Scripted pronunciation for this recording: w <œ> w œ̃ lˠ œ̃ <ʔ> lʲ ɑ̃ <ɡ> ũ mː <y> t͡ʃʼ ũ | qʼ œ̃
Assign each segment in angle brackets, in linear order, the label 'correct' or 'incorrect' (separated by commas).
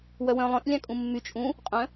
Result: correct, correct, incorrect, correct